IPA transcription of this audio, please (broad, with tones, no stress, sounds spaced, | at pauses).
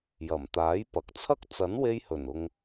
j ɐ˨˩ m t̪ aː˨˥ j p ɐ˨ k̚ t͡sʰ ɐ˥ k̚ t͡s ɐ˨˥ n w e˧ j h ɵ˨˩ n ʊ˧ ŋ